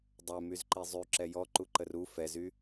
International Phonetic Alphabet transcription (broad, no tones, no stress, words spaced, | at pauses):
dˤɛmyzǃi zˤyǁɛ jɔǃuǃər u fɛzy